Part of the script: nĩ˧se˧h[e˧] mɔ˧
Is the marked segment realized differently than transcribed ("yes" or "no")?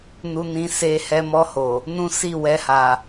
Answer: yes